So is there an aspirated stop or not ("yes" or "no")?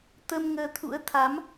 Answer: yes